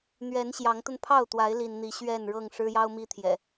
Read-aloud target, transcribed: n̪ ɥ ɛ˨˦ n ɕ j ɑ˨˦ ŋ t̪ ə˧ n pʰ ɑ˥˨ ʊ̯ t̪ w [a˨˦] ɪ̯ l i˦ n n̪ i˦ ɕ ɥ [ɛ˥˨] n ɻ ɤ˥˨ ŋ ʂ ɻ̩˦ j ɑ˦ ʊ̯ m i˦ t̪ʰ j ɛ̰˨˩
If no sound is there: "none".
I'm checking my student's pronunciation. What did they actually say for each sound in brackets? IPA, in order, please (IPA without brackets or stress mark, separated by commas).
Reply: a˨˦, ɛ˥˨